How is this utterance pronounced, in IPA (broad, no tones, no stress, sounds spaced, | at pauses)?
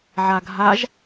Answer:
ʕ a ɡʱ a ʒ